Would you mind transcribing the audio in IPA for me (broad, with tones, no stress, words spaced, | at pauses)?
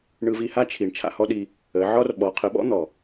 ɳɯ˧vi˧ha˦t͡ʃʰi˨ɳ t͡ʃʰa̰˧hɔ˦ɗi˧ | ə˨˦ʕɔ˦r ɓɔ˨˦qʰə˨˦ɓɔ̰˦n̪ɔ˨